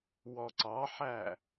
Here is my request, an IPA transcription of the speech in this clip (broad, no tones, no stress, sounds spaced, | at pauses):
w ɔ ǀ ɑ ħ æ